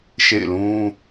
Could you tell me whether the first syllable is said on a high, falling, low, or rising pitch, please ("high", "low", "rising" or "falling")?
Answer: falling